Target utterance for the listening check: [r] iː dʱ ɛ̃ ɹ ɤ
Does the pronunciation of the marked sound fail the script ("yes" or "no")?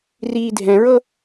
no